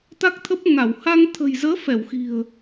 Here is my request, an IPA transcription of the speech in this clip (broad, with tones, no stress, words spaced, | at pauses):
t̪a˦˥k̚t̪ʰə˦˥p̚ŋa˧˩w ha˧ŋt̪ʰə̤˨˩jzəː˨˦ fɛ˧˩wxi̤˨˩ə̯